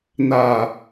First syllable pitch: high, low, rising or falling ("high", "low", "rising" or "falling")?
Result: low